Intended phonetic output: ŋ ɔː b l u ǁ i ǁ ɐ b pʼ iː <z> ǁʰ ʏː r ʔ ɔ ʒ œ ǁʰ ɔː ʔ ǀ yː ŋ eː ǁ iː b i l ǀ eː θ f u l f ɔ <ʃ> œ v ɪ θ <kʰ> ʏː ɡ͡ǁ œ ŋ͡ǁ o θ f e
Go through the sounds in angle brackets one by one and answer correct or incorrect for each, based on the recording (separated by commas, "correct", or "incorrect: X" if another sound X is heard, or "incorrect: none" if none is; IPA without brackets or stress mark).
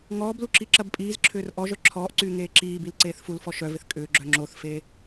correct, correct, incorrect: kʼ